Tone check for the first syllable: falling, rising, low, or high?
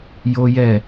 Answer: high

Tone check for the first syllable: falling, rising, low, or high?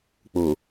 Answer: low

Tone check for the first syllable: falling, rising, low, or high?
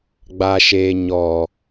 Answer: low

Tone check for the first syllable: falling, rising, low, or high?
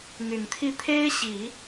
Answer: low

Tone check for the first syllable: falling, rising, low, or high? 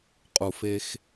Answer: low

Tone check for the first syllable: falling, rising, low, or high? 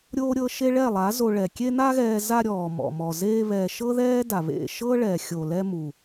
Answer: high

